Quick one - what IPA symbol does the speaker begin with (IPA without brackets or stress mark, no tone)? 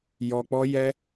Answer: j